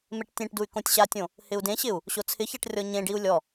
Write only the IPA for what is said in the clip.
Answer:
m e ʈ tʲ ẽ ʈ d u y̯ k õ tʲ ɕ a tʲ õ | h ɪ u̯ d ẽ ɕ ɪ u̯ | ɕ o t͡sʰ ɪ ç a ʈ rʲ ɔ ɲ ẽ ɖ i u̯ lʲ ɔ

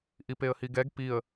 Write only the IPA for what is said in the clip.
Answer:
ʔ i p e ə̯ h i ɡ ɛ ɡ p i ə̯

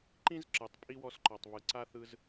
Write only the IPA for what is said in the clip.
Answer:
ǃ ĩ˥ z ǁ ɯ˩ tˤ pʼ i˥ w ɔ˦ s ǃ ɔ˩ tˤ β ɯ˩ ǀ a˥ θ ɯ˦ z

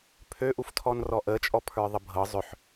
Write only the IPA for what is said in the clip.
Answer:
pʰ ø ʔ u f tʰ ɔ n r ɔ ʔ ə t͡ʃʼ ɔ pʰ ə˞ ðˤ ə bʱ ɤ zˤ ʏ ħ

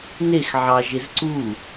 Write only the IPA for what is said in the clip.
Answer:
n e x ʕ ɑ ʒ e z ǀ u

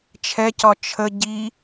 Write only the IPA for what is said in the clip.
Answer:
t͡ʃʰ ɛ c ɒ t͡ʃʰ ə ɟ i

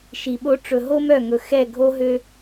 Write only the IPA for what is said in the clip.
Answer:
ʃ i˨ ɓ o˦ ʈ͡ʂ ɵ˨ ɦ o˦ m œ˦˨ ŋ ɵ˨ x ɛ˦˨ ɡʱ o˦ ɦ ø˦

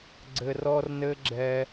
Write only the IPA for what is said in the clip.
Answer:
ɡ͡ǀ ɘ˧ r ɔ˧ r n ɘ˧ ɡ͡ǁ ɛ˧

